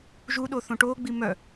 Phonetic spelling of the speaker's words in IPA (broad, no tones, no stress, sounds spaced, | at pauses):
ʒ u ɗ o θ õ ʈ oː ɡ͡b i m œ